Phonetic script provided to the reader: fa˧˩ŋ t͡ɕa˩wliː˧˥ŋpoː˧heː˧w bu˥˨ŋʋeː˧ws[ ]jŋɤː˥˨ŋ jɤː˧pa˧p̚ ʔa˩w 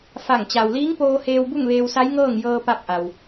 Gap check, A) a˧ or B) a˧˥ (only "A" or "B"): B